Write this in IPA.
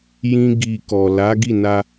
j ĩ˦ ɡ i˧ k ɔ˨ l a˨˦ ɡ i˦˨ n a˧

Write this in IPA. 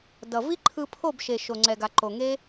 d ʌ˨ v i˦ ǃʰ ɯ˧ pʰ o˦˨ b ʃ e˨ ʃ o˨ ŋ͡ǀ ɛ˨ ɡ a˨ ǃ o˨ ŋ e˦

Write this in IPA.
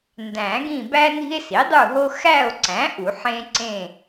n d æ̃˨˩˦ ɡ ĩ˦˨ b æ˦ n i̤˦ e̯ s i˩˥ dˤ u˦˨ ɦ o˦ x æ˦˨ o̯ ǀ æ̃˩˥ ʔ u˨˩˦ ħ ẽ˦ ǀ ẽ˦˨

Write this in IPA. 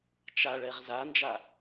t͡ʃ a ɭ ɛ ʁ z a n d͡ʒ a

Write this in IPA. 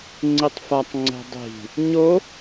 ŋ͡ǀ i tˤ f a tˤ ŋ͡ǀ ɛ̤ dˤ i̤ | ɲ o

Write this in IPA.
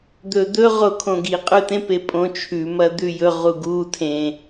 d̪ ɵ d̪ ɵ ʁ o kʰ õ ɡ i qʼ ʉ t ẽ p e pʼ õ t͡ʃʰ ʉ m ɐ d̪ ʉ j ɵ ʁ u ɡ u tʰ ẽ

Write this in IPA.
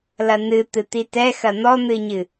l ɐ n ɨ t̪ ɨ t̪ i t ɛ x ɐ n̪ ɔ n̪ ɨ ɲ ɨ

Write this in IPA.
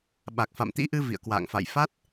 ɓ a˨˩ k̚ f a̰˧˨ m t̪ ḭ˧˥ ʔ ɨ˧ v ḭ˧˨ ə̯ k w a̰ː˧˨ ŋ f a̰˧˨ j f a˦˥ t̚

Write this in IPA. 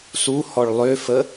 s u h ɔ ɭ lˠ ø f ə

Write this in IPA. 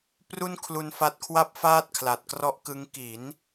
p r u˥˩ n kʰ l u˧ n f a˦˥ t̚ kʰ w a˥˩ p̚ f aː˥˩ t̚ kʰ l a˨˩ t̚ k r ɔ˥˩ ʔ k ɯ˦˥ ŋ k i˩˦ n

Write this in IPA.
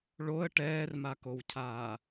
ɭ o ə̯ ʈ ɛː r m a k o w cʰ aː

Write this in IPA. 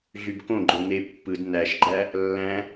ɮ y b k õ ɡ͡ǃ o n e pː ɯ d n æ ʃ ɡ͡ǃ æ | lː æ̃

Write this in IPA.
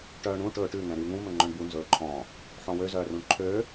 ʈ œː ɳ ũ ʈ ɵː ʈ ʉ ŋ ɛ̃ ɾ yː ŋ ũ m ɵ ŋ͡ǃ œ̃ ɳ b u n z ɵː ǃʰ ɔ̃ | ħ ɔ̃ w ø z œː r ũ ɳ ǃʰ ø

